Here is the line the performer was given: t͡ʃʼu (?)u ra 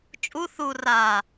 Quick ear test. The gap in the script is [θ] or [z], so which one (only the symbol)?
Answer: θ